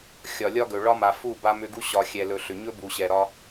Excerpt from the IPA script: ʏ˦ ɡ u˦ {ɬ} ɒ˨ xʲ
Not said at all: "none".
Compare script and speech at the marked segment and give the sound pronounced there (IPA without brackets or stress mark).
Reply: ɕ